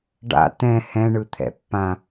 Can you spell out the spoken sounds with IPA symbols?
ɖ a̰ t̪ ɛ̃ h ɛ̃ ɳ ɯ t̪ʰ ɛ̰ pː ã

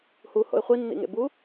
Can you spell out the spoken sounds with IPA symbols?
h u h o̰ ɪ̯ χʷ i nː ḭ ŋ ḛ b u

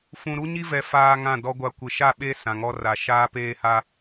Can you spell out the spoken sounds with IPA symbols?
f ũ˨ ɾ u˦ ɲ i˦ v ɛ˨ f aː˦ ŋ ã˦˨ d ɔ˦ ɡʷ a˨ kʷ ɪ˨ ʃ a˦˨ ɓ e˦ s ã˨ ŋ ɔ˦ r a˨ ʃ aː˦ p eː˦ h a˦

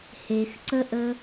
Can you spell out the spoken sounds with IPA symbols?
h e x ǀ ə ʔ ə

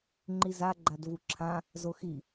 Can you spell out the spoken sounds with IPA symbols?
ŋ͡ǃ i z a ɡ͡ǃ a d v u ǁʰ ã | z o x i

